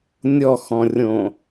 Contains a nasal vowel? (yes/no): yes